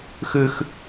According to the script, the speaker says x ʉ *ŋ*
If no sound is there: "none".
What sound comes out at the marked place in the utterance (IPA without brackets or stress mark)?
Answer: x